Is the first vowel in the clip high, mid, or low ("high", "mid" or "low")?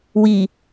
high